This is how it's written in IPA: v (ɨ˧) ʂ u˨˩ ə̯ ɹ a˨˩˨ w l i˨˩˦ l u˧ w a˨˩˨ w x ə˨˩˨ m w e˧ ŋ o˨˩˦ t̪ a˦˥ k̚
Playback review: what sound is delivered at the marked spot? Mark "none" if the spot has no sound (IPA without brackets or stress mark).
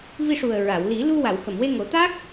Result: i˧